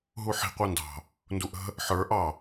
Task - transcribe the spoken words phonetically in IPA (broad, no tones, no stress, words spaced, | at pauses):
ɦuħi̤ qʷɑndɑ̤ | nduʔə̤ | ħə˞ ʔɑ